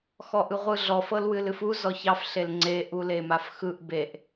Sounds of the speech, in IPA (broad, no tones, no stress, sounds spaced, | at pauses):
x ɔ ʔ ɯ ʁʷ ɯ ɮ ɔ f ɤ l w ɨ l ɨ f u z ɔ ç ɑ f ɬ e l ŋ͡ǀ e ʔ u l e m a f x ɯ ʔ b e ʔ